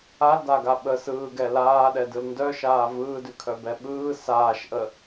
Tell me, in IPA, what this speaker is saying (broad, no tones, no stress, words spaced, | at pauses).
aldaɡa ɓəsɯːɡɛ laːɗɛdɯl ndœʃaː vɯːdʉkʰœbɛ ɓɯː saːʃʔə